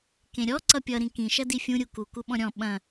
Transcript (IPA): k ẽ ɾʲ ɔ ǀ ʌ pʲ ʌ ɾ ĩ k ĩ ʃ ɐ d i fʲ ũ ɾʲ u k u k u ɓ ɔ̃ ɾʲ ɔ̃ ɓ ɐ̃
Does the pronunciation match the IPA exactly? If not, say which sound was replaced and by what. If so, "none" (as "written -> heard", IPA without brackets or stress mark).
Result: none